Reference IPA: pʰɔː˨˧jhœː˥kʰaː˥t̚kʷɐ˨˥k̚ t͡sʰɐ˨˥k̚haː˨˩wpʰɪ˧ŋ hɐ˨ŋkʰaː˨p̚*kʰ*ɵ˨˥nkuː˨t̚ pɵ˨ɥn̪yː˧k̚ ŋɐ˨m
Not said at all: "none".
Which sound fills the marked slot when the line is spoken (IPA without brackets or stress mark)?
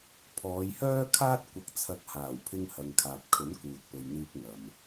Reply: kʰ